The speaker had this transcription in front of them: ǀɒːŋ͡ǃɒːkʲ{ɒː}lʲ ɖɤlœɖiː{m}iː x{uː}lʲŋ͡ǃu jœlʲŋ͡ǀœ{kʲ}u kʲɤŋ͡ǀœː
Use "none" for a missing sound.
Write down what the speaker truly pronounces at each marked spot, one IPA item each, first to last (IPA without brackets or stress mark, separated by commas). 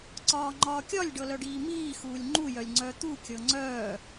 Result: ɒ, m, uː, t̪